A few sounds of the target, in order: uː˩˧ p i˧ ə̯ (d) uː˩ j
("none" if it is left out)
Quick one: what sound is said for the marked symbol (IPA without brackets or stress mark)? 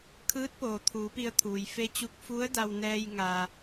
t̪ʰ